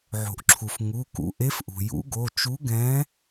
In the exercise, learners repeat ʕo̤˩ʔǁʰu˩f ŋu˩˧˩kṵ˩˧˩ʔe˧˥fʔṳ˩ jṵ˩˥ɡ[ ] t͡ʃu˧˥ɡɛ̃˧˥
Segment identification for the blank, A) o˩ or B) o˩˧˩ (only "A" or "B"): B